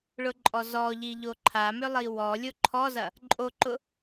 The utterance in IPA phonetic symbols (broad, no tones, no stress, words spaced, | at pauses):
ɭʊǃʼɔzɔʎi ʎoǃʰamʏ lˠiwɔlʲo ǃʰɔzɐ | ǃʼoǃʊ